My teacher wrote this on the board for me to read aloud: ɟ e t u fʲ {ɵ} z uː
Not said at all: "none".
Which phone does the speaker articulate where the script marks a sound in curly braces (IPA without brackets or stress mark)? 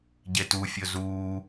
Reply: ɵ